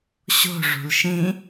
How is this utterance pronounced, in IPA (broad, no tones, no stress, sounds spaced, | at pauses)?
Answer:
ɕ o̤ ʐ ṳ l ʃ ĩ